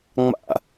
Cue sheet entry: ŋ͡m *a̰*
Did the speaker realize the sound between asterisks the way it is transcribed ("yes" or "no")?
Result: yes